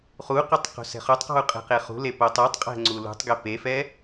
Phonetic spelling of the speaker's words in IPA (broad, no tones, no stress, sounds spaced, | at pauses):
χ u q o tˤ q o̤ s ɛ̤ χ o tˤ q ɔ̤ u̯ qʼ e̤ q e χ ṳ l e p o tˤ u tˤ qʼ ɛ̤ ŋ͡ǀ u l ṳ tˤ ɡ e p e f ɛ